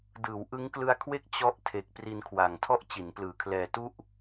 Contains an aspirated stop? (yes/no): yes